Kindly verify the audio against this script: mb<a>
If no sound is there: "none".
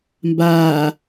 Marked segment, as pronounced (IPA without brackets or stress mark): aː